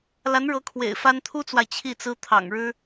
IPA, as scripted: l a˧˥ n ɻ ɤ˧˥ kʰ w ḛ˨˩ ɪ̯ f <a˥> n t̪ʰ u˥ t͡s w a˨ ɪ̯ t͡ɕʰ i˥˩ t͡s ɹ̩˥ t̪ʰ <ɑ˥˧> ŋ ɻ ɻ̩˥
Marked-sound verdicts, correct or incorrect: correct, incorrect

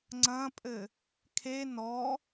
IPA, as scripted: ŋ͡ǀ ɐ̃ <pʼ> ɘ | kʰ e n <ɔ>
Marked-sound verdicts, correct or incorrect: correct, correct

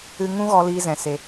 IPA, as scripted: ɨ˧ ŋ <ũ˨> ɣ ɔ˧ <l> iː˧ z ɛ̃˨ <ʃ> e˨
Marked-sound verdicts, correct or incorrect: incorrect, correct, incorrect

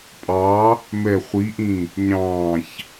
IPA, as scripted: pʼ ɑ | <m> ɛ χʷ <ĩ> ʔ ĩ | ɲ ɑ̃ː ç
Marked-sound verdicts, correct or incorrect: correct, incorrect

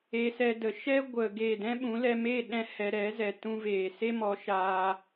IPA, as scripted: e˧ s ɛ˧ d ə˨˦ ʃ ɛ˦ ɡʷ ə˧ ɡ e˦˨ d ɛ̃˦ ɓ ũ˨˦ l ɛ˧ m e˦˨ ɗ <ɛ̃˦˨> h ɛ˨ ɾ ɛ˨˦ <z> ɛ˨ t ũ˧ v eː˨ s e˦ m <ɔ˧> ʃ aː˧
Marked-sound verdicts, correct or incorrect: incorrect, correct, incorrect

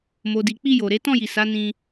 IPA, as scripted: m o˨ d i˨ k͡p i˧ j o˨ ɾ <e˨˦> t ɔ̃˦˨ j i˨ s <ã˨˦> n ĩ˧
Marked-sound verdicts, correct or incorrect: correct, incorrect

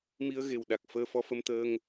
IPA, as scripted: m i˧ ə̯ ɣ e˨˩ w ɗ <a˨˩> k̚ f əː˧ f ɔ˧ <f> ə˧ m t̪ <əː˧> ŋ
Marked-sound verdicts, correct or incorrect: correct, correct, correct

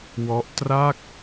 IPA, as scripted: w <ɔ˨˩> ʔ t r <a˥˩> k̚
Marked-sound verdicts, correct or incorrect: incorrect, correct

